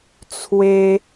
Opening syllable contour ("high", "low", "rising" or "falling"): high